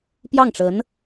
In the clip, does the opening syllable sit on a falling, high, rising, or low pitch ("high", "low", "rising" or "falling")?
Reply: falling